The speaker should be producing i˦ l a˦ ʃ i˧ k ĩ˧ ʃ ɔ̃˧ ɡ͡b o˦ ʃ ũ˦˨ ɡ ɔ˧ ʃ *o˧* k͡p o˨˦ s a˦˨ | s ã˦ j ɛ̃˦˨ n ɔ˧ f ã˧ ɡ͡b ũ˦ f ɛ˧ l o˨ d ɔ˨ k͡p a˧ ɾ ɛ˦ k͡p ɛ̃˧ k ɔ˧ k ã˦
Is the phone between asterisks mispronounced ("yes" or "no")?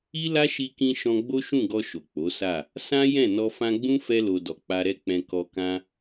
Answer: yes